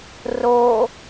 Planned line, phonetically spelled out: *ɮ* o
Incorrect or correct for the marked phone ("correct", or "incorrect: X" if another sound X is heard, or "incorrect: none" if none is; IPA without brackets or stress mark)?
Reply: incorrect: r